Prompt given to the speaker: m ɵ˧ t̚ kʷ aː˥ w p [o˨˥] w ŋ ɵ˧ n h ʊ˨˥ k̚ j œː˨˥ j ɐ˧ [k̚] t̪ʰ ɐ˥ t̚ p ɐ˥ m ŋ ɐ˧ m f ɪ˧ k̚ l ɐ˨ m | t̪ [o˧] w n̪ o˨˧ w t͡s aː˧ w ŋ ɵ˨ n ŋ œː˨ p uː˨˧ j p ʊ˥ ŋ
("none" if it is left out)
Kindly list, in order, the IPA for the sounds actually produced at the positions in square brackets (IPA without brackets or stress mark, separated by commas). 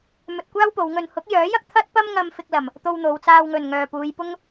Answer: o˨˧, k̚, o˧